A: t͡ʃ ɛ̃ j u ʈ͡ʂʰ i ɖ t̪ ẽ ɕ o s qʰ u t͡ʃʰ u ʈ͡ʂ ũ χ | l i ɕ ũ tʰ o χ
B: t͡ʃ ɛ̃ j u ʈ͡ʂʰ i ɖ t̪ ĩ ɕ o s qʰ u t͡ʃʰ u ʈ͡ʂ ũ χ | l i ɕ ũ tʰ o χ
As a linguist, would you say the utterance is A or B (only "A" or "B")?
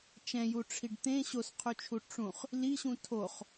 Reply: A